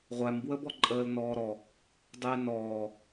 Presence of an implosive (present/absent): absent